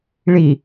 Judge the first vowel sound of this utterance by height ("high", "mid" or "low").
high